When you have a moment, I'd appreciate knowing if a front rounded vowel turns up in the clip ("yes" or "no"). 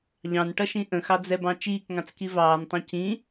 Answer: no